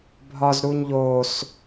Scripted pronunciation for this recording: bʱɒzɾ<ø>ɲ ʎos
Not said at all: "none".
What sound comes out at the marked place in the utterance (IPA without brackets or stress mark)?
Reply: u